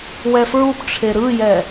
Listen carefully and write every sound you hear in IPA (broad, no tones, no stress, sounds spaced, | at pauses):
w ɛ f ɹ u p ʈ͡ʂʰ e ɾ ɯ j ɛ